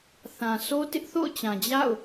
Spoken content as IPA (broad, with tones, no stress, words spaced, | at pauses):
θã˨sʰo˦ tɪ˦ʔθo̰˦˨ʊ̯t͡ɕã˨ d͡ʑa̰˦˨ʊ̯